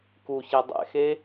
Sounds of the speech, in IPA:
k u ç ɛ dˤ ɛ̰ x e

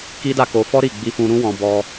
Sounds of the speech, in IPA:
k i˦ d a˦˨ k o˧ f ɔ˦ ɾ i˦˨ ɡ͡b i˧ f ũ˧ ɾ ũ˦ w ɔ̃˧ b ɔ˧

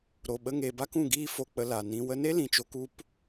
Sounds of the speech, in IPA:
ɾ o˨ ɓ ə˧ ŋ e˨ b a˦ k ũ˦˨ ɡ iː˦ f o˧ k͡p ə˧ l a˨ n ĩ˧ w ə˧ n e˦ l ĩ˨ t͡ʃ o˧ k u˦ p

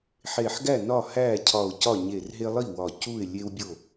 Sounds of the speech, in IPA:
ħ e˧˩ ħ ɡ æ˥˩ n ɒ˥˩ h æ˥˩ cʰ ɒ˧˩ ʊ̯ c ɒ˥˩ ɲ e˧˩ r ɦ e˦ lˠ i˥˩ w ɒ˧˩ c u˥˩ ɪ̯ lʲ e˦ w bʲ o˥˩

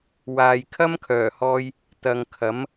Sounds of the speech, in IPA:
w aː˨ j kʰ ɐ˥ m kʰ œː˨˩ h ɔː˧ j | t̪ ɐ˨ ŋ kʰ ɐ˨˥ m

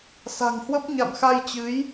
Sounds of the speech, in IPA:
s a̤˨˩ ŋ h w ə˦˥ p̚ ɲ a̰˧˨ m x a˧ j t͡ɕ ɨ˨˦ j

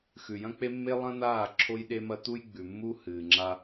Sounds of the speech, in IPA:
x ʉ˨ j ɐ̃˦ k͡p e˦ mː e˦ lˠ ɐ̃˦ n̪ aː˦˨ ǁʰ o˦ j ɗ e˦ m ɐ˦ t̪ u˦ j ɡ͡b ʉ˨ mː u˦ h ɨː˨ ŋ͡ǁ a˦

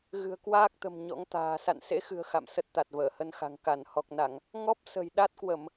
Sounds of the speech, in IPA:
ɣ ɨ̤˨˩ ə̯ k w aː˦˥ k̚ t̪ ə̤˨˩ m ɲ ɔ̰˧˥ ŋ t̪ a̤ː˨˩ s a̰˧˨ n s ḛ˧˥ x ɨ̤˨˩ ə̯ x a̰˧˨ m s ə˦˥ t̚ t̪ a˨˩ t̚ v əː˧˩ h ə˧ n x a̤˨˩ ŋ k a˧˩ n h ɔ˨˩ k̚ n a˧˩˨ ŋ | ŋ ɔ˦˥ p̚ s ə̤˨˩ j ɗ a˦˥ t̚ k w ə˧˩˨ m

